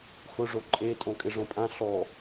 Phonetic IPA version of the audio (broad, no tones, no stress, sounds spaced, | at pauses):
x ʊ ʐ o ǃʼ e tʼ õ kʼ ɪ ʐ õ pʼ ã ɬ ɔ